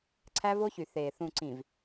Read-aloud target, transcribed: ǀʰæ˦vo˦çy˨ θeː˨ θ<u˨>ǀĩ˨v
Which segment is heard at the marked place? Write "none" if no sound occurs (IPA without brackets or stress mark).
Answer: ũ˨